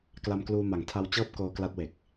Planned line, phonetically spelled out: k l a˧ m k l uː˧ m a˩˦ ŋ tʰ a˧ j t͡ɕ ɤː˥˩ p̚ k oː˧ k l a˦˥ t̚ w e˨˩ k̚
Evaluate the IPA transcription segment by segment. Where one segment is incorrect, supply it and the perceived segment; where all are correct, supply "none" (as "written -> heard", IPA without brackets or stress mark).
j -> w